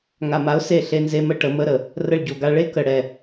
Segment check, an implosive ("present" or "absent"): absent